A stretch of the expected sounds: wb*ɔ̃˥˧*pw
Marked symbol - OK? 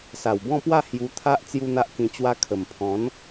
yes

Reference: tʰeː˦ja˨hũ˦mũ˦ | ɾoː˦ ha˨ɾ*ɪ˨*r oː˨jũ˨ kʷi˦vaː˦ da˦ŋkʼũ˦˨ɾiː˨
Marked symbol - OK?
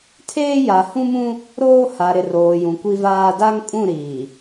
yes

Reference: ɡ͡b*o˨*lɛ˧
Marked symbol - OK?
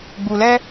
no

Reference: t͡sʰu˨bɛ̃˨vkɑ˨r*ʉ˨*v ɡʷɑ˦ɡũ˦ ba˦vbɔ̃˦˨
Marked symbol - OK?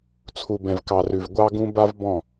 yes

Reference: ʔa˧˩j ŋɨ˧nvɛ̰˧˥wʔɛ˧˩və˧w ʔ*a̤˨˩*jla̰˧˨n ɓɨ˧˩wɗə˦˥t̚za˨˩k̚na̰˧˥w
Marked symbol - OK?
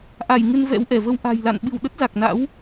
yes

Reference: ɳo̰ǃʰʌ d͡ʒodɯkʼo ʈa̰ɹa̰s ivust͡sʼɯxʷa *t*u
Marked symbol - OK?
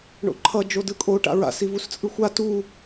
yes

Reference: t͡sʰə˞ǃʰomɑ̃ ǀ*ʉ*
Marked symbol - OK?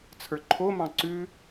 yes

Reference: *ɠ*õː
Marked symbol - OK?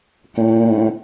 no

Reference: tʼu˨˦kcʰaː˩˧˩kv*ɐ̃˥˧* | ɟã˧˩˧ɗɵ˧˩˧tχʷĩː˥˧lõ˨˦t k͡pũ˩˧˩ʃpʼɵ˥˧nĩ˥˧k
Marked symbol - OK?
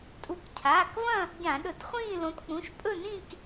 yes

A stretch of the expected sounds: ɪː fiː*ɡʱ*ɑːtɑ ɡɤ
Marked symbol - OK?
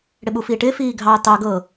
yes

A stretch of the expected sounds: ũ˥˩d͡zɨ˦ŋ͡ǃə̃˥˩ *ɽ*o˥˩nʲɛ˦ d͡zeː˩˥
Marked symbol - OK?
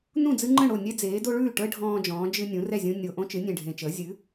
yes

